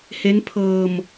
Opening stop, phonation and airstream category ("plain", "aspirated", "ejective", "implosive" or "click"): aspirated